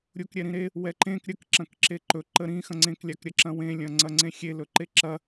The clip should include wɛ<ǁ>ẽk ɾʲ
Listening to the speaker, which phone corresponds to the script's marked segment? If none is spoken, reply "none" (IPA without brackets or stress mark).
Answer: ǃ